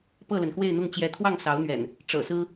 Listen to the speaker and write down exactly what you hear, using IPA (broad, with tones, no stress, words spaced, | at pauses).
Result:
pɤ˥˨lə˩nkwe˥˨ɪ̯n̪ʊ˥˨ŋ t͡ɕjɛ˨˦t̪ʰwɑ˥˨ŋsɑ˨˦ʊ̯n̪ɥɛ̰˨˩n | ʈ͡ʂɤ̰˨˩sɹ̩˦